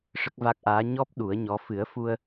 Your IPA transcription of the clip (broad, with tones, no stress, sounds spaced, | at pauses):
ʂ ə˦˥ k̚ v a˦˥ k̚ ʔ aː˧˥ ɲ ɔ˦˥ p̚ ɗ u˨˩˦ ə̯ ɲ ɔ˧˥ f ɨ˨˩˦ ə̯ f u˧ ə̯